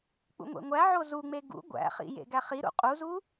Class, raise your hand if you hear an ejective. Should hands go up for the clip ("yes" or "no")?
yes